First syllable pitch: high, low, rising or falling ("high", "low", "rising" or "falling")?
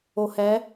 low